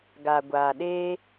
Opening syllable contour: low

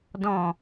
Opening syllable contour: low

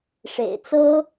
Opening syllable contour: low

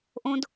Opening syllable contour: low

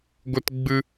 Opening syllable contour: high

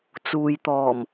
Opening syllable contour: low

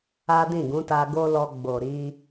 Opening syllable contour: high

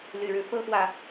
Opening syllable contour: low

